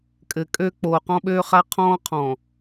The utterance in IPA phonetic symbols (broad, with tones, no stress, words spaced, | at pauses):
kʼɘ˨kʼø˦ k͡poː˨qɔ̃˦ɓøː˦χa˦ qʰɔ̃ː˦qʰɔ̃˨